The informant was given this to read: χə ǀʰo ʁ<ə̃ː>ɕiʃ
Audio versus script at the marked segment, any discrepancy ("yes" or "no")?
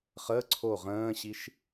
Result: no